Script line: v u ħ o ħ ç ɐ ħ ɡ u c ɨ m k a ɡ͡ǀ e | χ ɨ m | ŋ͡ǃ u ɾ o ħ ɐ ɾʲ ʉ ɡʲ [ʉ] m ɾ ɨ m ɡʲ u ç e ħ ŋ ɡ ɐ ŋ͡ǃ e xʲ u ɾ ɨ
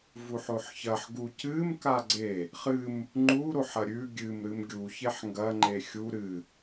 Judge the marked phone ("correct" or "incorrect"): incorrect